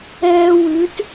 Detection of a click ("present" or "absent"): absent